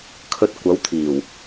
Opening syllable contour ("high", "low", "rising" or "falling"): low